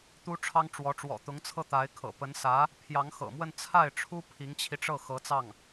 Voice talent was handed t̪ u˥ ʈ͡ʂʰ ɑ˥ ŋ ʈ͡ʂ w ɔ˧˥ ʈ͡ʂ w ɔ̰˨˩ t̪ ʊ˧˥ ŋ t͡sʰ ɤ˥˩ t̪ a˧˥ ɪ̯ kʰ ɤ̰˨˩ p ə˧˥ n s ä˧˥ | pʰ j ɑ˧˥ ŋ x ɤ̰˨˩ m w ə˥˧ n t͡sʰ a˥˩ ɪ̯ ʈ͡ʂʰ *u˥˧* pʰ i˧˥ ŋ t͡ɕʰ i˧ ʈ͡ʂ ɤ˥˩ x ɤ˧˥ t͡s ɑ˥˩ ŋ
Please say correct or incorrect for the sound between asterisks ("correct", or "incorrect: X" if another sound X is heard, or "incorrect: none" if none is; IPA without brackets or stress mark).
incorrect: u˥